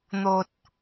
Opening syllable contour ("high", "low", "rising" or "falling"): low